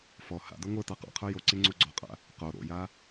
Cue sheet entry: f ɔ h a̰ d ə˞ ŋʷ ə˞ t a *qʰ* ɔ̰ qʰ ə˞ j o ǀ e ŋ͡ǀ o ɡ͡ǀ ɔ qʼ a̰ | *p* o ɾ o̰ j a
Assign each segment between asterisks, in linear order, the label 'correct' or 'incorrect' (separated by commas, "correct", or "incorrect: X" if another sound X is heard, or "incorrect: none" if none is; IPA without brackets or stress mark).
incorrect: q, incorrect: q